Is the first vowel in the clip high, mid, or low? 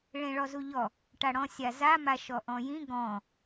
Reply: mid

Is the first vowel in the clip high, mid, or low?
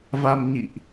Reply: low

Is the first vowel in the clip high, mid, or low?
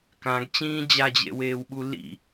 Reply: low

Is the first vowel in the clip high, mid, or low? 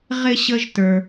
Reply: high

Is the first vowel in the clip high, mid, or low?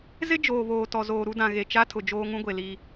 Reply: high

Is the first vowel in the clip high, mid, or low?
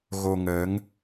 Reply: mid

